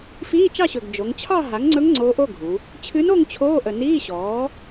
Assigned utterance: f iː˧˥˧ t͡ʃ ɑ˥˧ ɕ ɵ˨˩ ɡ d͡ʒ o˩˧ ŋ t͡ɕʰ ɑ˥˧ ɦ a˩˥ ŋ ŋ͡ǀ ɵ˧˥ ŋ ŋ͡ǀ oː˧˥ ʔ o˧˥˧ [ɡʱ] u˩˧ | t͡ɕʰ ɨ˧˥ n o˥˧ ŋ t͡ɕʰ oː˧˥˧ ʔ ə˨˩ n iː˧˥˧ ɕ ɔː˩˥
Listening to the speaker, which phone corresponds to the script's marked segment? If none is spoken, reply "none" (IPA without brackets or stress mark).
ɡʱ